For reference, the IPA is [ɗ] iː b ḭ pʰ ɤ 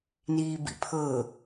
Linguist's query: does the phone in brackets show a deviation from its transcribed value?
yes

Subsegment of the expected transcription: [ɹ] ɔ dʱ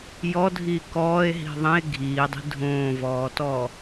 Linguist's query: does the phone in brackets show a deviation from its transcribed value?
yes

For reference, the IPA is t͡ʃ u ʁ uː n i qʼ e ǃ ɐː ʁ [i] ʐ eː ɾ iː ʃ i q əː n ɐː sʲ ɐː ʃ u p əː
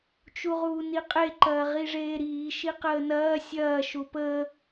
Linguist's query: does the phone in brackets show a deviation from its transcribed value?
no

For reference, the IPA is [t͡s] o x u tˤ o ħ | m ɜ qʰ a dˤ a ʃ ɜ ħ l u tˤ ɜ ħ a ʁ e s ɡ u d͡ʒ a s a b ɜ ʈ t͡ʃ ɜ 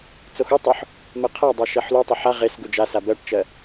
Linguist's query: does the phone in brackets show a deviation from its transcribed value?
no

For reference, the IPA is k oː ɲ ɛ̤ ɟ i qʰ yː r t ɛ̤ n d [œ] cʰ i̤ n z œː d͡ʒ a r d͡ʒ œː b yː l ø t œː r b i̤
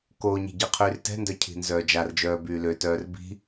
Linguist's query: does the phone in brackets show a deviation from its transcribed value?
no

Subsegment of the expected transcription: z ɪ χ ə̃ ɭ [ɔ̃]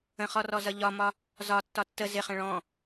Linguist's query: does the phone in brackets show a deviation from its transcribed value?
no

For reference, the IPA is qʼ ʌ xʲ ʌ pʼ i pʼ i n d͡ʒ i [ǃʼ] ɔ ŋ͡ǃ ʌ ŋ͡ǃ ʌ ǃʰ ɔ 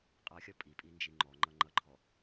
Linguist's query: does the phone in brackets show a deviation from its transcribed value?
yes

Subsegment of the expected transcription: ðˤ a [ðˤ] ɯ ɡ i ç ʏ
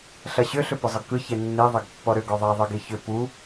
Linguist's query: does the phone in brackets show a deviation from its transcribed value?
no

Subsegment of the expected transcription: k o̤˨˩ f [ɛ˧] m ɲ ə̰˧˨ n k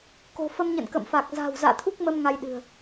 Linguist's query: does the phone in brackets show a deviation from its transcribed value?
yes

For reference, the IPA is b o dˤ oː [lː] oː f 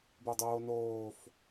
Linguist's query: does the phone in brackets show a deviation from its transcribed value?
yes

